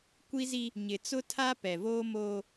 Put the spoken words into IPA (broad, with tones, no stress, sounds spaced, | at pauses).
kʷ i˦ z i˦ | ɲ ɪ˨ t͡s ʊ˦ tʰ a˦ p ɛ˨ v oː˦ m oː˦